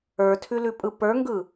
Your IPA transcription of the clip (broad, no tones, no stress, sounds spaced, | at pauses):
ə˞ tʰ ʉ l ʉ pʼ ɯ p ə˞ ŋ ɡ ɯ